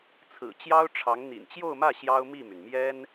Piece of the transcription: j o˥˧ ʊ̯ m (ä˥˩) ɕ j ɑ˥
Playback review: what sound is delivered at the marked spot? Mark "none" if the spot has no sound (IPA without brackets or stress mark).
ä˥˩